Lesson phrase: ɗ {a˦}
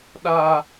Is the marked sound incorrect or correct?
correct